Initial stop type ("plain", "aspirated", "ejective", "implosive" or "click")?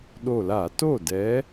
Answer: implosive